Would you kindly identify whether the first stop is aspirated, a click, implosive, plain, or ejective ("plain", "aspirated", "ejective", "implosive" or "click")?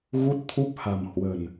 plain